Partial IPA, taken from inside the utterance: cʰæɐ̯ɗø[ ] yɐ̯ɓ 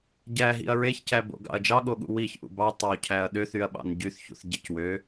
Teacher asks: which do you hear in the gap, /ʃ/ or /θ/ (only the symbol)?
θ